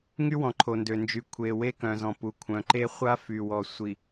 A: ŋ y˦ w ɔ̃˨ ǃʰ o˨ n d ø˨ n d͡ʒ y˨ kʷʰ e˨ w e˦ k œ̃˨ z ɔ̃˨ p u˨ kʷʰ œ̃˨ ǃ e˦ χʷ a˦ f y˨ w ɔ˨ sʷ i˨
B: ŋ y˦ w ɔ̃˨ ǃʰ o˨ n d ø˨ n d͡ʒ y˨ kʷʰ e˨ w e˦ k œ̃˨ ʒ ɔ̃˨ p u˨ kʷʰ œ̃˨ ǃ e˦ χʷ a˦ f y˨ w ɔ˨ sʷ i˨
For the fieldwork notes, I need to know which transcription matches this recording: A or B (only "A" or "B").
A